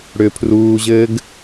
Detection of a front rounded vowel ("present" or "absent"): present